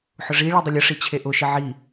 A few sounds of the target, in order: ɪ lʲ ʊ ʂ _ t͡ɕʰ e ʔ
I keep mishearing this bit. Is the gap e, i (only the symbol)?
i